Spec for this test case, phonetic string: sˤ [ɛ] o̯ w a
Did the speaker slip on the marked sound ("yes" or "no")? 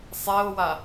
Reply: no